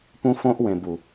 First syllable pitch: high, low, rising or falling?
high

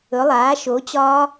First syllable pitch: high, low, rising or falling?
rising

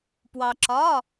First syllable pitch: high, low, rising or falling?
low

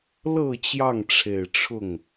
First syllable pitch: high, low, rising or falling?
low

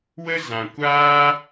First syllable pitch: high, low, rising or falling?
high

